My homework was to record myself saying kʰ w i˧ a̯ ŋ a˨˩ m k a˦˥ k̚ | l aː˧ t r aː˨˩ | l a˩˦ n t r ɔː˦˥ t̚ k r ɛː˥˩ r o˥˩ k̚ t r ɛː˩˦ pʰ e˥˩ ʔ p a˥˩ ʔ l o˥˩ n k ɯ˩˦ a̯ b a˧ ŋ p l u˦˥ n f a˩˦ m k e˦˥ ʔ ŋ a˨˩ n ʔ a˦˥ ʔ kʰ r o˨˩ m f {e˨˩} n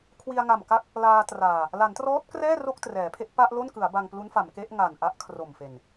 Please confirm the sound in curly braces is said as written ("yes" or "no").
yes